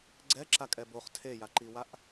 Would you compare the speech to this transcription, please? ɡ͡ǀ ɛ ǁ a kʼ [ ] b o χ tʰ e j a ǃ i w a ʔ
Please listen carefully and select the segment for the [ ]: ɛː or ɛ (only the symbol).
ɛ